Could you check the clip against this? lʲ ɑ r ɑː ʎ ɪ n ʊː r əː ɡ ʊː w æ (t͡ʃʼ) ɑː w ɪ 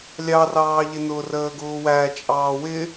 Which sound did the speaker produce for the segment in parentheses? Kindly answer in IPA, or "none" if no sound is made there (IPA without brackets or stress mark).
t͡ʃʼ